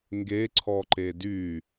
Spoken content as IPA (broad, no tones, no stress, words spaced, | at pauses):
ŋɡeǀʰɔǃe dy